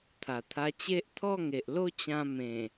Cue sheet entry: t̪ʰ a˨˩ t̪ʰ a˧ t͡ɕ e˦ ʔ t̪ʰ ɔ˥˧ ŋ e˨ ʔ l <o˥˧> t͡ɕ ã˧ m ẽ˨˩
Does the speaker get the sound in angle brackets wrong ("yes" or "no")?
no